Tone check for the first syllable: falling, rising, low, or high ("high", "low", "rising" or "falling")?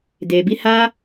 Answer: low